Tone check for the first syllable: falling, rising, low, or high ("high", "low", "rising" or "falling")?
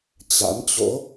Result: rising